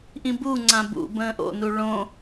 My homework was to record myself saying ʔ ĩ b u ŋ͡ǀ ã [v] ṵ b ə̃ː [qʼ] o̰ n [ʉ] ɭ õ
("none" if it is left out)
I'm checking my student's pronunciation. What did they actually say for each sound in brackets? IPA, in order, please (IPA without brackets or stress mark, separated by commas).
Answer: b, ʔ, u